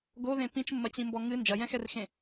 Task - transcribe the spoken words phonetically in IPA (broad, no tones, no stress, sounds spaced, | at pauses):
ɡ o ð ẽ p ĩ t͡ʃ mː ɐ t͡ɕ ĩ m b ɔ ŋ ɨ n d͡ʒ ɐ j ɛ̃ x ɛ r x ẽ